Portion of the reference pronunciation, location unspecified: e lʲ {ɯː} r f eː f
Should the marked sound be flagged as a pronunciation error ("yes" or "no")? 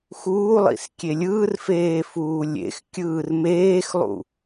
no